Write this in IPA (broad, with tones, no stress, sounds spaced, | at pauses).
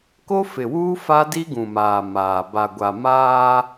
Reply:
k o˦ f ɪ˨ w uː˦ f a˦ d i˦ ɡ ũ˨ m aː˨ m aː˨ b a˨ ɡʷ a˨ m aː˦